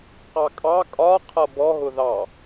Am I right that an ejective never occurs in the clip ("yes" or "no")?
no